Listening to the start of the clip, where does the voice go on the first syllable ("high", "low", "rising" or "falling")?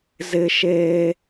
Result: high